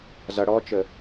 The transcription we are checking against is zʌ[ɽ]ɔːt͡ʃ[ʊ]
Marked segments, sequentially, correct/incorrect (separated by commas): correct, incorrect